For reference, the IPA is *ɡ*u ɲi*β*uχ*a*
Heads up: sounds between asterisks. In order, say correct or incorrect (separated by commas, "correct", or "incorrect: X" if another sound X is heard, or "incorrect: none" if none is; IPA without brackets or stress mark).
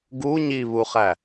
correct, correct, incorrect: æ